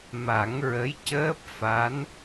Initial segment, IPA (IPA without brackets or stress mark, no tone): m